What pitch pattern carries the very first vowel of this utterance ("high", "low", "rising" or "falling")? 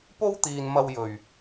high